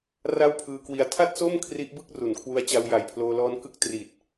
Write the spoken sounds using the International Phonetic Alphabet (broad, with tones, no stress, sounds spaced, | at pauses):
r a˥˩ w pʰ ɯː˧ k w i˧ a̯ tʰ a˥˩ t̚ s o˥˩ m kʰ r i˦˥ ʔ b ɯ˥˩ k̚ r u˩˦ n kʰ w u˧ a̯ t͡ɕ a˧ w j a˨˩ j pʰ l oː˧ l ɔː˦˥ n k ɯ˦˥ k̚ t r iː˨˩ t̚